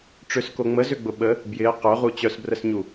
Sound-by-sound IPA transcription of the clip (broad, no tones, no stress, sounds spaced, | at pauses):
ʈ͡ʂ ʏ s k o ŋ͡m ə z ʏ ɡ͡b ʊ ɓ ə | b j ɪ ə̯ q œ ʁ u t͡ɕ œ s b r ə s ɲ u